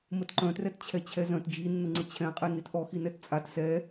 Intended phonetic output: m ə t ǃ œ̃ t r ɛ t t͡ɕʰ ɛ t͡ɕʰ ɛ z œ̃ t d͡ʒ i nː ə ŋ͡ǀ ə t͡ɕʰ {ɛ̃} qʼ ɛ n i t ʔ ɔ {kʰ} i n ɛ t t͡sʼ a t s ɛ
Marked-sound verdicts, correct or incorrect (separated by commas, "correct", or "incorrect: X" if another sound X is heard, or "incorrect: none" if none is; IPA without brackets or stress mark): correct, incorrect: x